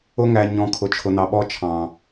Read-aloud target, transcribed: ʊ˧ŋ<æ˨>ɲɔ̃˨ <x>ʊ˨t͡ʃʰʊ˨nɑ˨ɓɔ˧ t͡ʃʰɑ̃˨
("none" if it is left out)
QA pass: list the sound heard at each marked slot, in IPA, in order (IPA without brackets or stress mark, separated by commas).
æ˨, kʰ